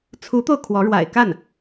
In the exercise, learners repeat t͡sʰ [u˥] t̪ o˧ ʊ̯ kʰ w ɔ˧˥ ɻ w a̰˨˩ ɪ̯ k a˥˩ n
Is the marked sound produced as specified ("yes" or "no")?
no